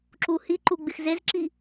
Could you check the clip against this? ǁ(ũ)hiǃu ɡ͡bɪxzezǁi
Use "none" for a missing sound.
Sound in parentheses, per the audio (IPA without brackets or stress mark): u